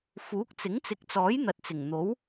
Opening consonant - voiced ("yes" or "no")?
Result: no